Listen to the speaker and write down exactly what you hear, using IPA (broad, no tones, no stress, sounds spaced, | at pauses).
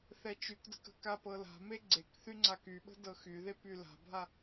θ ɛ t͡ʃ y k d ə̤ k ə̤ k a p ɤ l a̤ m e ɡ͡ǀ e k θ y ŋ͡ǀ a k y ɓ ə̤ d ɤ x y ð e p y l a̤ bʱ a